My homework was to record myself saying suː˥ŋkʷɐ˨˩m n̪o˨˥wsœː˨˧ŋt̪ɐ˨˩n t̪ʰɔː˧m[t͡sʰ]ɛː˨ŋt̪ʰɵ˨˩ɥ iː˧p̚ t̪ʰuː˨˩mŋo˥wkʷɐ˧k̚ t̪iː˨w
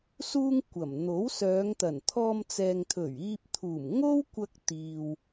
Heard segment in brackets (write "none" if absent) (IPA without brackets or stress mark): t͡s